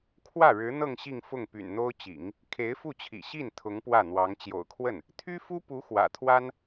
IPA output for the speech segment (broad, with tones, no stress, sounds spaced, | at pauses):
kʰ w ä˥˩ ɻ ɻ̩˧˥ n̪ ɤ˥˧ ŋ ɕ i˥˧ ŋ f ʊ˥˩ ŋ p y̰˨˩ n n̪ o˥ ʊ̯ t͡ɕ ḭ˨˩˦ ŋ | kʰ e˧˥ ɪ̯ f u˥˩ t͡ɕʰ ḭ˨˩ ɕ i˥˩ n t̪ʰ ʊ˧˥ ŋ p w ä˥˩ n̪ w ɑ˧˥ ŋ t͡ɕ j o̰˨˩ ʊ̯ kʰ w ə˥˩ n | t̪ʰ y˥ f u˥ p u˧˥ x w ä̰˨˩ t̪ʰ w a˥ n